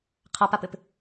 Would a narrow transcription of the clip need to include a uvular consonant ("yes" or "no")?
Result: yes